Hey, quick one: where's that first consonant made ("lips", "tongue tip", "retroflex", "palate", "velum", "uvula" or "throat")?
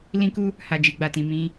tongue tip